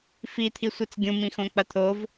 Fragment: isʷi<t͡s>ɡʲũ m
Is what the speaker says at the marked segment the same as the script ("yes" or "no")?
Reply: yes